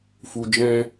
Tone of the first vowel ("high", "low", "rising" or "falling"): low